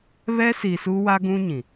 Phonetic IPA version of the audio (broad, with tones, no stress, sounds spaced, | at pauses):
β ɛ˦ s i˨ s u˦ w a˦ ɡ ũ˦ ɲ ĩ˨